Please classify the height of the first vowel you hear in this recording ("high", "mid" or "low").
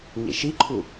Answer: mid